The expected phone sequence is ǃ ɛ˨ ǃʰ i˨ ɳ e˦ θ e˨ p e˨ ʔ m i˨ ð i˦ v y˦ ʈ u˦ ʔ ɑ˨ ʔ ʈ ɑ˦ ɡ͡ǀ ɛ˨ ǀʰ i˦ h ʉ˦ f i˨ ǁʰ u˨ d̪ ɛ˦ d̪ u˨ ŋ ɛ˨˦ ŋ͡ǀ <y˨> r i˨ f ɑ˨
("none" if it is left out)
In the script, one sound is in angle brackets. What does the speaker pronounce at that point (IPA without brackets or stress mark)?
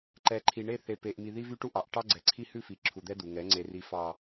e˨